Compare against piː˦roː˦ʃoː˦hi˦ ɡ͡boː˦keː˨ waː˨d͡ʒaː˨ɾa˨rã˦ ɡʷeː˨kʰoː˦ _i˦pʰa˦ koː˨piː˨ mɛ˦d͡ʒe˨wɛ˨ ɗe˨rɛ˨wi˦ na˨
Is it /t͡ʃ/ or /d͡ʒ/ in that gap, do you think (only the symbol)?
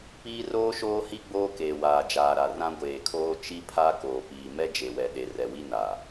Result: t͡ʃ